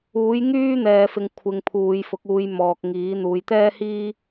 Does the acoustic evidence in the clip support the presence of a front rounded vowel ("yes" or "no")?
yes